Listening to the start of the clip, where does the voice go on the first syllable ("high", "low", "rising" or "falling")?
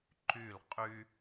falling